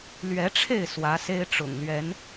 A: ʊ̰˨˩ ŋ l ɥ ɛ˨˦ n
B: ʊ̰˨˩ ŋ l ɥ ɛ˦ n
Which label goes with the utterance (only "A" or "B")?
A